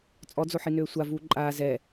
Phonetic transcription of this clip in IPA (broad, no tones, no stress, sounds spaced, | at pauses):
t͡sʼ ɔ d͡z o ħ i n øː sʷ a v uː ǃʼ aː z ɛ